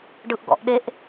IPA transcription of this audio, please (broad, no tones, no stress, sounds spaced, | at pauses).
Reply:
ɖ ɯ ʔ ɡ ɔ̰ ʔ ɗ e ʔ